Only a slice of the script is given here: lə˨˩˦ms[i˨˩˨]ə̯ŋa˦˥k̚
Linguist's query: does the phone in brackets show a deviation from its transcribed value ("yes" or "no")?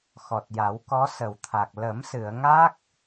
yes